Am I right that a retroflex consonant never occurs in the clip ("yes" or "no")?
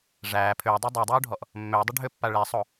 no